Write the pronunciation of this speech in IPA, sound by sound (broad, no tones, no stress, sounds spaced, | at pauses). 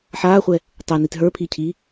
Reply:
ħ aː χʷ ɛ | tˤ e n i t ɦ ə˞ pʰ i cʰ i